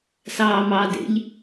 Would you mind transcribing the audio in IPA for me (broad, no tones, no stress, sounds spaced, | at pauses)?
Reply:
s ɑː m ɑ d ḛ ʎ